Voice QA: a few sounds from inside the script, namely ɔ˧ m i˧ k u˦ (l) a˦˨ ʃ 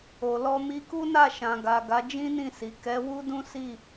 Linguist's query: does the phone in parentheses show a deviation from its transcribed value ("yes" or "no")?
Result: yes